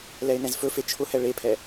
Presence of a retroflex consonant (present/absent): present